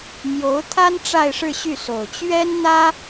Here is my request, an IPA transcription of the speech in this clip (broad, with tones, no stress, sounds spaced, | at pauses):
m j o˧˥ ʊ̯ t̪ʰ a˥ n ʈ͡ʂ a˥˧ ɪ̯ ʂ ɻ̩˥˧ ɕ y˥˩ s o˨˩ ʊ̯ t͡ɕ ɥ ɛ˥ n n̪ ä˥